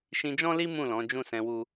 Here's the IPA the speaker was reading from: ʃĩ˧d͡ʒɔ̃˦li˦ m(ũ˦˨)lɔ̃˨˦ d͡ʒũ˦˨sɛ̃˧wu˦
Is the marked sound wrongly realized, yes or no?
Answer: no